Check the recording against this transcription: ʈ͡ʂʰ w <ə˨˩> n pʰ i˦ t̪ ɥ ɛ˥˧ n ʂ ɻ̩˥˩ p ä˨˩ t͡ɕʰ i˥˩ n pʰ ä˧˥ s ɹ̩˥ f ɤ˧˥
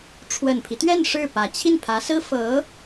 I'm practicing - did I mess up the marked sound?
no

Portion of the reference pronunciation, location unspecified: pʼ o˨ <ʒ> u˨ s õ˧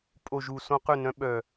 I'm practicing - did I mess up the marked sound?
no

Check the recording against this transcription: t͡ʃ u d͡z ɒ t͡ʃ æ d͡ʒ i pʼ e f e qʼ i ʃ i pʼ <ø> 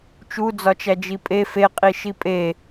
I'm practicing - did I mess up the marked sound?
yes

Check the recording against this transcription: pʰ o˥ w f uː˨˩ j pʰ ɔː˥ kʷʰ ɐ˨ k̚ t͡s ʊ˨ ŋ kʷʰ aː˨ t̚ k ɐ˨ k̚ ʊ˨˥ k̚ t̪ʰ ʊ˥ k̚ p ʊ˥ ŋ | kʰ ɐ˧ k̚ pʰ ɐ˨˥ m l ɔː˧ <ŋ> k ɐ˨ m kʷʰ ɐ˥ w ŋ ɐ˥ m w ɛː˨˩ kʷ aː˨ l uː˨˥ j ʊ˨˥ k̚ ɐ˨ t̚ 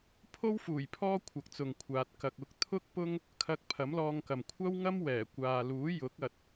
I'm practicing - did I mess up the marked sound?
no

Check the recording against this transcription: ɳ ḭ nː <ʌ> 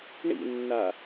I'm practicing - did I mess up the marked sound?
yes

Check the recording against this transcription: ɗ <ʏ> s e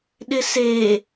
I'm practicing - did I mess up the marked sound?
yes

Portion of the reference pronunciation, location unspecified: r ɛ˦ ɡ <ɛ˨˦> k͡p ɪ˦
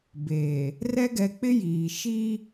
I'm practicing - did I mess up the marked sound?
no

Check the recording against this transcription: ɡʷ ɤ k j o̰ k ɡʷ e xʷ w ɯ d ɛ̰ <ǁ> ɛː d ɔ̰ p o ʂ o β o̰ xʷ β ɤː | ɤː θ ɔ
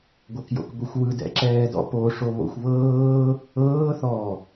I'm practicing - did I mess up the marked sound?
no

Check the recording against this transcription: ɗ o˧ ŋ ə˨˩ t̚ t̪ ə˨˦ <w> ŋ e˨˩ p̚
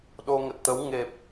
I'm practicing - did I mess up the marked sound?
no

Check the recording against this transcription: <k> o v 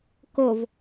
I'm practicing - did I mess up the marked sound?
no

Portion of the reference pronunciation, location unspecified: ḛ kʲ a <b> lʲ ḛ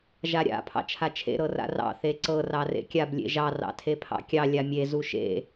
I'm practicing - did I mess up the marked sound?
no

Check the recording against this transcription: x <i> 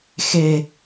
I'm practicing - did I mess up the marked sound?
yes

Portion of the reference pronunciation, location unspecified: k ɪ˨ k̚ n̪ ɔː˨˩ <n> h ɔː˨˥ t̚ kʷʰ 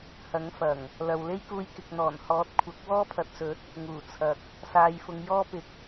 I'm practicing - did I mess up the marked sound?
no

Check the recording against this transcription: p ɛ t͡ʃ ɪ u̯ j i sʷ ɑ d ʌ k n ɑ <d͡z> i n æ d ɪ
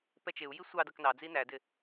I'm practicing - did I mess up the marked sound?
no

